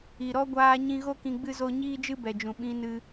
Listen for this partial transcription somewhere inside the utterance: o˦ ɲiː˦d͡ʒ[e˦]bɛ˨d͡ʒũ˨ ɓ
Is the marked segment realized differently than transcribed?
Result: yes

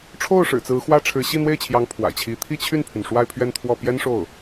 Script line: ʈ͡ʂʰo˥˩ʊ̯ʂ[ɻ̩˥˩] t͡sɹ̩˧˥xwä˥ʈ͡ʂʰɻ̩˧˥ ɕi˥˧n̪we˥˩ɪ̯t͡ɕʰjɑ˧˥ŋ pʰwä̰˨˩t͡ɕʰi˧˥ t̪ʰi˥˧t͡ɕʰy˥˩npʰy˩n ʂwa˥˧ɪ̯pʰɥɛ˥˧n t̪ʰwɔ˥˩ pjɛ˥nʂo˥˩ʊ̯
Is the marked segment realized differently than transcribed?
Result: yes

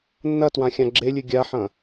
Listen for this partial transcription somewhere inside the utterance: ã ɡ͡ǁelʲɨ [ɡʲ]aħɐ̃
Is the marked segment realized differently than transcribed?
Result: no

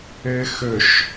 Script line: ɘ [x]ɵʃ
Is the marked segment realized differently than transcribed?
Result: no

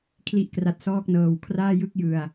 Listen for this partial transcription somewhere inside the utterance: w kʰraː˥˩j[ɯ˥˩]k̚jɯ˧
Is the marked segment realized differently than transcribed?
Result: no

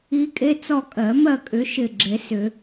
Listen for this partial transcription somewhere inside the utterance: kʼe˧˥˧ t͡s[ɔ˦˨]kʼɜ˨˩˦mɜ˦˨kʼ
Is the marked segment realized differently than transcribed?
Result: no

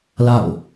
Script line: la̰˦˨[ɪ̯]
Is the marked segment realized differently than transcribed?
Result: yes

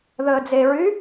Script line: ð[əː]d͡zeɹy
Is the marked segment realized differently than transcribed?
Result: no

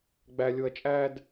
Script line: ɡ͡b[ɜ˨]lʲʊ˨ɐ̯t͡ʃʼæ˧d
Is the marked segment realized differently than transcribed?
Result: yes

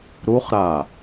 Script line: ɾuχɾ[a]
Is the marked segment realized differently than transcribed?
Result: no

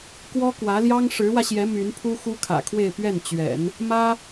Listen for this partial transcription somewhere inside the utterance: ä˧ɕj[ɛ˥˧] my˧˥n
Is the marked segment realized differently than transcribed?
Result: yes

